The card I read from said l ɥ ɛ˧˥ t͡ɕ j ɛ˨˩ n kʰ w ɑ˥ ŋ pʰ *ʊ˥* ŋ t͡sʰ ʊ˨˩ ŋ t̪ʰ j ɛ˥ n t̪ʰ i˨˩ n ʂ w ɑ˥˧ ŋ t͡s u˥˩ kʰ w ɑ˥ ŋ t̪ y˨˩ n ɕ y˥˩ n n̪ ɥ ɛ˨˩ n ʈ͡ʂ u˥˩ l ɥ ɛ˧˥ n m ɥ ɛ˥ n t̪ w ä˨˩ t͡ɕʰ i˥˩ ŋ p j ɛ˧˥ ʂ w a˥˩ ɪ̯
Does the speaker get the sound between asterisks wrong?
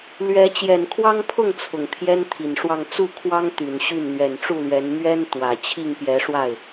yes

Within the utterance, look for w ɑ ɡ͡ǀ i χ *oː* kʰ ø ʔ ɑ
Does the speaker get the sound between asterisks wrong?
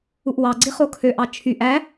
yes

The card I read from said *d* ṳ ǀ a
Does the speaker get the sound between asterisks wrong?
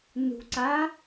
yes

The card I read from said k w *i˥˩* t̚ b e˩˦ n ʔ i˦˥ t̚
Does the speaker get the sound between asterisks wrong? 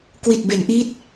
yes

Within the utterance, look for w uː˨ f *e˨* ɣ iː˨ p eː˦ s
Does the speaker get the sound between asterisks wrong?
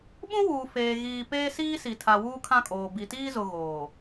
yes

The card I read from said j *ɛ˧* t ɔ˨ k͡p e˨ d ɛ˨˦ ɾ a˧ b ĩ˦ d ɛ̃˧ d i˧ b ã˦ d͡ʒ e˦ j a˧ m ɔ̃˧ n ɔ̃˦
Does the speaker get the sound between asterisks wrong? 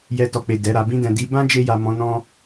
no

